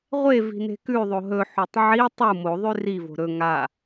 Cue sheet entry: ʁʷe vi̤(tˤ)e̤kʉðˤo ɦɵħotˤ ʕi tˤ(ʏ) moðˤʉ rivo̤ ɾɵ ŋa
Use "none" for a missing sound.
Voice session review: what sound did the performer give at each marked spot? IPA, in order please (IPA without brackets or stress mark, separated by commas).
n, u